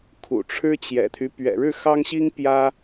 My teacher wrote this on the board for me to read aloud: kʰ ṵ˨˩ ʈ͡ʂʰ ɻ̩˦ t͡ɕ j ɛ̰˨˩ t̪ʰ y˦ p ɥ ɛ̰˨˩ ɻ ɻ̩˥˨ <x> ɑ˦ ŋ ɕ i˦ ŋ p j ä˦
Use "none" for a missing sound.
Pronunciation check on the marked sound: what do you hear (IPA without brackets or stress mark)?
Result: x